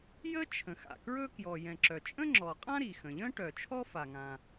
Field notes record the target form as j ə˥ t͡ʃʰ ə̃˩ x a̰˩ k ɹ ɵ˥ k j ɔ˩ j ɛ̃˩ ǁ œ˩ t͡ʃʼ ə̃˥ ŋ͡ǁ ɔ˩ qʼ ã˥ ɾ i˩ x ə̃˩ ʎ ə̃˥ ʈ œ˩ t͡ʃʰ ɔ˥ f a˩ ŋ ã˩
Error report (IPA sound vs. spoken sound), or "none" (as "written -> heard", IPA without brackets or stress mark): none